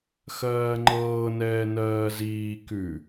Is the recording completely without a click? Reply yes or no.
no